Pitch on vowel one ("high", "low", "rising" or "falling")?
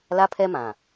high